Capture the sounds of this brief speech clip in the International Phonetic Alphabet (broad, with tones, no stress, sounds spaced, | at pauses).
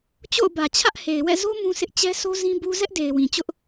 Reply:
t͡ɕ o̰˦˨ ʊ̯ b ä˨ t͡ɕʰ ä˦ ʔ h e˨ ɪ̯ w ɛ̰˦˨ z o˦ m ũ˦ s ɪ˦ ʔ t͡ɕ ɛ˦ s o˦ z ĩ˦ b u˦ z ɛ˦ ʔ d e˨ ɪ̯ w ĩ˨ t͡ɕ ʊ˦ ʔ